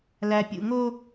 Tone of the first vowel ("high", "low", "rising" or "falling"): low